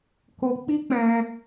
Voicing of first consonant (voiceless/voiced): voiceless